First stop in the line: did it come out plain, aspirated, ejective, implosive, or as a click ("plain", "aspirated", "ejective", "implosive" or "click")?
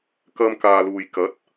plain